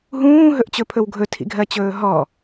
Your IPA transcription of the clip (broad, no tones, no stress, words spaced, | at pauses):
ɦũːɦɵʔt͡ɕɵpʰɵw ɡʱɵtʰḭɡʱɜt͡ɕɵː ɦɔ